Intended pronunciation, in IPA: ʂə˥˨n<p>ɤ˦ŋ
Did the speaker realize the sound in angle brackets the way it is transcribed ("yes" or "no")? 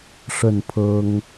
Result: no